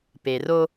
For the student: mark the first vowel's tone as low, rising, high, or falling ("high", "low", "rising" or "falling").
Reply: low